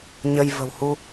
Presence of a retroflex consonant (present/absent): absent